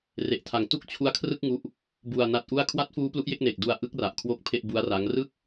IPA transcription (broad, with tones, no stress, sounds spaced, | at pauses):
r e˨˩ ʔ tʰ a˨˩ ŋ t u˥˩ k̚ t͡ɕʰ u˦˥ a̯ kʰ r ɯ˥˩ k̚ ŋ u˥˩ ʔ | b u˧ a̯ n a˦˥ t̚ ʔ u˥˩ a̯ kʰ w a˦˥ t̚ f uː˦˥ p l u˦˥ ʔ j e˥˩ k̚ n eː˨˩ k̚ d u˧ a̯ ʔ ɯ˦˥ k̚ r a˨˩ ʔ kʰ w o˦˥ k̚ pʰ e˥˩ ʔ b u˦˥ a̯ r a˦˥ ŋ r ɯ˥˩ k̚